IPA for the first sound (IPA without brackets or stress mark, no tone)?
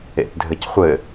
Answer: ḛ